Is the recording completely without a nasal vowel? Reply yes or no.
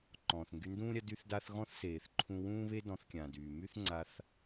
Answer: no